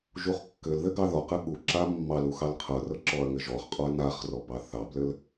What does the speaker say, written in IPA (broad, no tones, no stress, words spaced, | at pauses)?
ʒuχkːɘlðɘ ɡɑðɔqɘ ɠu ǁamːɑlu xɑlqʰɤrɤ ǁɔɐ̯ŋɘʒɔχqʼɔɐ̯ naχrɔ bɑθɑblɘl